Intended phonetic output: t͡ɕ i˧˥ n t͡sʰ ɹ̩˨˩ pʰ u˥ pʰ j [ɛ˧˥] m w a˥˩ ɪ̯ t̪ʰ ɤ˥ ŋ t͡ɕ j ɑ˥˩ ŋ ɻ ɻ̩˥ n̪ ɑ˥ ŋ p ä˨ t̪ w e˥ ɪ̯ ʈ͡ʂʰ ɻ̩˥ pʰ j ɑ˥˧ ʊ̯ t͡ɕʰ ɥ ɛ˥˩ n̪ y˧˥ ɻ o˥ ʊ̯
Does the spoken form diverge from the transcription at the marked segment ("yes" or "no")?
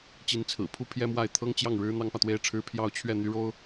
yes